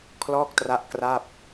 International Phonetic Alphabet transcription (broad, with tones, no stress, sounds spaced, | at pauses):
kʰ l ɔː˥˩ k̚ t r a˦˥ ʔ k r a˥˩ p̚